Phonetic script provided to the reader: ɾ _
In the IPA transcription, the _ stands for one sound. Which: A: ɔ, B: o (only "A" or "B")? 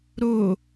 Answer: B